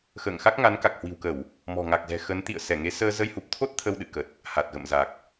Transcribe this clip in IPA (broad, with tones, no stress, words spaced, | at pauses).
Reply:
xə̰ː˧˨ŋxa˦˥k̚ŋa˨˦n ka˨˩k̚hwi̤˨˩wkə˧˩˨w | mɔ̤˨˩ŋa˨˩k̚zɛ̤˨˩ xə˨˦nt̪ḭ˧˨ə̯ sɛ˧˩ŋe˨˦ səː˧ zə˧jhu˨˩p̚t̪ʰo˦˥t̚ t̪ʰə˧wɗɨ̰˧˨ kə˨˩t̚ | ha˨˩t̚ɣə̰˧˨m za˨˩k̚